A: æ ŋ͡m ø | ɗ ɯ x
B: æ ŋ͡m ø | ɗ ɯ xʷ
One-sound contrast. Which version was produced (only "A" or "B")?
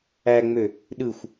B